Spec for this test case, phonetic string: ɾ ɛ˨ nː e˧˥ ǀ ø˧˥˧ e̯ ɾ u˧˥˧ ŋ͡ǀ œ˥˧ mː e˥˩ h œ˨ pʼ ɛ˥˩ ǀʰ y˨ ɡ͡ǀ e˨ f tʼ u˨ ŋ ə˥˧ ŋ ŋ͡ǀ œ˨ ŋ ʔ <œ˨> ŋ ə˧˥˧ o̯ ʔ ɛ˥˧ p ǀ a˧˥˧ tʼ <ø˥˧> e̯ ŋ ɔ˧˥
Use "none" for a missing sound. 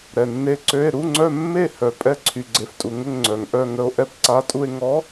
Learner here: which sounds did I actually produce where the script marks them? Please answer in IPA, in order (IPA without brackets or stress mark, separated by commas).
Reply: œ˥˧, u˥˧